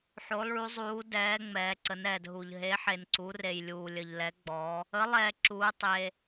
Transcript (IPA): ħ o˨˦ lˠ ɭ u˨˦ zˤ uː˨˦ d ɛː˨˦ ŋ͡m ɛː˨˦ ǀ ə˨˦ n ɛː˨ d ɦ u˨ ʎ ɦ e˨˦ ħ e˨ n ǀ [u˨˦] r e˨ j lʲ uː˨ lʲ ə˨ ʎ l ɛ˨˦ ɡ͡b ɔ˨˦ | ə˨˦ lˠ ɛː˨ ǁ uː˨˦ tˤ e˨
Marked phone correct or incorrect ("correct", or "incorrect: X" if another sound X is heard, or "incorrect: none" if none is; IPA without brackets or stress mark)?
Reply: correct